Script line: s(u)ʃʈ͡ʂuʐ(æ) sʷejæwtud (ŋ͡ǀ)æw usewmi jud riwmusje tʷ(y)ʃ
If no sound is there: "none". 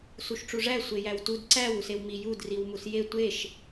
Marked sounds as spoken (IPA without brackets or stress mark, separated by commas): u, æ, ǀ, e